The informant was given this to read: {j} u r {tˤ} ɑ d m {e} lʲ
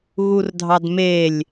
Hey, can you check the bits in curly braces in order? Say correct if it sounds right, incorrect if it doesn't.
incorrect: ɣ, incorrect: dʱ, correct

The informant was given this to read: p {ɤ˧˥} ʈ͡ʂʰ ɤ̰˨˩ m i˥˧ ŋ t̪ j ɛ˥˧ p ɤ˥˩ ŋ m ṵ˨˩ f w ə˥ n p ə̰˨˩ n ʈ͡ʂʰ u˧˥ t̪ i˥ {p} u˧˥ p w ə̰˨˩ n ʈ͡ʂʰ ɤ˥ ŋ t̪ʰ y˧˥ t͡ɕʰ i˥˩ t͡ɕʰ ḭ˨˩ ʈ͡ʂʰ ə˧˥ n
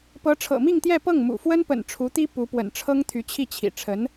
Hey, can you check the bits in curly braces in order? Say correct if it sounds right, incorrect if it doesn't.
correct, correct

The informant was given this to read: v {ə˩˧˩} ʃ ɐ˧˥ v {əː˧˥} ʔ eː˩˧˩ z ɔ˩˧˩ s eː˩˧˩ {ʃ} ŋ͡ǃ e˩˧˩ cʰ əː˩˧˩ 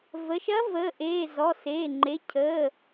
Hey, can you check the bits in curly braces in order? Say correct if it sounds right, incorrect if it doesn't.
correct, incorrect: əː˩˧˩, incorrect: none

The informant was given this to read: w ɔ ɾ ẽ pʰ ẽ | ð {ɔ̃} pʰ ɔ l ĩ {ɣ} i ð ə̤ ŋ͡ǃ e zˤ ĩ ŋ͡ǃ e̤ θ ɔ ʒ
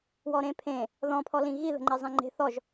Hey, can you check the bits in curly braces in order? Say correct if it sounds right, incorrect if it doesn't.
correct, correct

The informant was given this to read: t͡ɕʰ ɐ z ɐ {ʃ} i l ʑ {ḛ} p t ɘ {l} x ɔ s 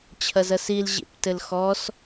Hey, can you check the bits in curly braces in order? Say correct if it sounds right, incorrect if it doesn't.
incorrect: s, correct, correct

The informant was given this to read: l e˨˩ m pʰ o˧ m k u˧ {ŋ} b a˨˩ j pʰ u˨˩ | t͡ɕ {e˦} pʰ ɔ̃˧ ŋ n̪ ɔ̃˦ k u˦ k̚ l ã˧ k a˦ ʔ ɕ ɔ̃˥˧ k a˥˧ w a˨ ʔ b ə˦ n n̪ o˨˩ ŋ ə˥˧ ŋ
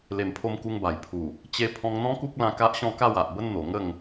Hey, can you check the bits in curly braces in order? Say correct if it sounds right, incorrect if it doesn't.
correct, incorrect: e˧

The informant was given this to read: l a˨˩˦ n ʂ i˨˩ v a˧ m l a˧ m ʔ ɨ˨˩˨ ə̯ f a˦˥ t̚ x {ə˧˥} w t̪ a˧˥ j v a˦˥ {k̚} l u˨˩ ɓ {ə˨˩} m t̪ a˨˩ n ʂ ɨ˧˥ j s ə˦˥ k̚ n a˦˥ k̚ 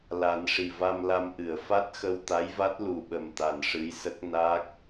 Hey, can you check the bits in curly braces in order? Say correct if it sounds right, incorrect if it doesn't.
incorrect: ə˧, incorrect: t̚, correct

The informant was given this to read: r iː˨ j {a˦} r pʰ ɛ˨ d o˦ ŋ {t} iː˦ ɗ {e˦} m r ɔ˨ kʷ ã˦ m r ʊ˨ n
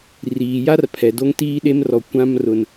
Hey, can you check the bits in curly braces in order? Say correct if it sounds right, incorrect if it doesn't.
correct, correct, correct

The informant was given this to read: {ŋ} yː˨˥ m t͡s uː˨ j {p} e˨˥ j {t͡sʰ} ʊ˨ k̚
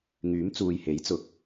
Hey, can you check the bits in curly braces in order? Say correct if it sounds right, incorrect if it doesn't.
correct, incorrect: h, incorrect: t͡s

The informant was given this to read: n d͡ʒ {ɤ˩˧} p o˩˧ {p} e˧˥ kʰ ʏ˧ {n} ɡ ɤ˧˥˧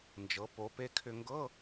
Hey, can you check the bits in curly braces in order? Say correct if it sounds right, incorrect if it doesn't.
correct, correct, incorrect: ŋ

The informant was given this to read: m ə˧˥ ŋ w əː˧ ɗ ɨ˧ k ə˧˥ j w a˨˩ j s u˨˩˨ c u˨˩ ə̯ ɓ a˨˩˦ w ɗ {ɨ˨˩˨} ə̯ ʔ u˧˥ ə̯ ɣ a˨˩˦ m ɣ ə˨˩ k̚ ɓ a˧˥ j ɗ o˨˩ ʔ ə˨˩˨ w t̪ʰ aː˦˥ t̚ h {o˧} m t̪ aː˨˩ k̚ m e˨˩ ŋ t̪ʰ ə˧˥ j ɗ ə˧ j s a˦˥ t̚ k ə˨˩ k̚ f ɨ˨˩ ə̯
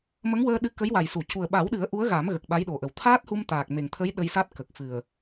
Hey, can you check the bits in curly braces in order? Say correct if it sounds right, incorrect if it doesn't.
incorrect: ɨ˨˩˦, incorrect: u˧

